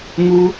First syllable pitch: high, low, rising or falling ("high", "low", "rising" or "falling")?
high